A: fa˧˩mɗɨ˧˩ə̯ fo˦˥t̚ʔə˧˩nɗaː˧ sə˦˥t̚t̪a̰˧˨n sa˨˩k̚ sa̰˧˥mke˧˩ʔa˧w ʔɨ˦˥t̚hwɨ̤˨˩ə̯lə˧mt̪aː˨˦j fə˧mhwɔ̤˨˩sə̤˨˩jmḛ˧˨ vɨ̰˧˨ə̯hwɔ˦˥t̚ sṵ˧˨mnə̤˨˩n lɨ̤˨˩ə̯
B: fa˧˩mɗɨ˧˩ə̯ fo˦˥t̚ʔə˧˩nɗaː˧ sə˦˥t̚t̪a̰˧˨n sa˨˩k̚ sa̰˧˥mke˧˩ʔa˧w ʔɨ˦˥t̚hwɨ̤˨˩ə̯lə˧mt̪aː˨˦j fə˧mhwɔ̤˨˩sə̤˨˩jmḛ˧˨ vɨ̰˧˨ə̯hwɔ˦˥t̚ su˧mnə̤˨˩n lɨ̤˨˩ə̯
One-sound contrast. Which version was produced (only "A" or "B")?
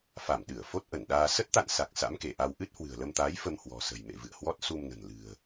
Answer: B